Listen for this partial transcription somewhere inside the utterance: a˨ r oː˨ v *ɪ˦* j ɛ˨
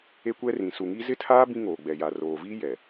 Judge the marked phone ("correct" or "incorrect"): incorrect